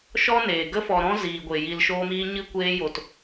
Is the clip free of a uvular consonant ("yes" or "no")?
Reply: yes